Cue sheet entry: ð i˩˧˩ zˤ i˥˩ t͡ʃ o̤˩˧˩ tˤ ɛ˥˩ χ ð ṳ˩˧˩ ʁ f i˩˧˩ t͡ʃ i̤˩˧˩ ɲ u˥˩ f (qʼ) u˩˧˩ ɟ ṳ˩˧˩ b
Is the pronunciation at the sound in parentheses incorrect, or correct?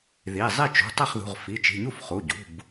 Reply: incorrect